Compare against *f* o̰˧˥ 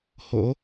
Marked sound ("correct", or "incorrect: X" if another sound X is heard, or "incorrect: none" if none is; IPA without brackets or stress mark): incorrect: h